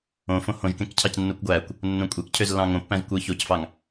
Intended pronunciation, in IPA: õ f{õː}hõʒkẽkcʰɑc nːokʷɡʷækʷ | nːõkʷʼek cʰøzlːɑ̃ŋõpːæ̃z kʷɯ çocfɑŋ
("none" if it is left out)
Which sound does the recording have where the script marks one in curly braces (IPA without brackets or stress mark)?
õ